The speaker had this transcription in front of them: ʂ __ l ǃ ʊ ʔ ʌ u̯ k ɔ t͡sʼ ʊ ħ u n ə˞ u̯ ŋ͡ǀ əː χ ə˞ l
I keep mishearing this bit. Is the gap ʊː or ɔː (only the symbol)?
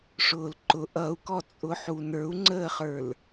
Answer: ʊː